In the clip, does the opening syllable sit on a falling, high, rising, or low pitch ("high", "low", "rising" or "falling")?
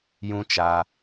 high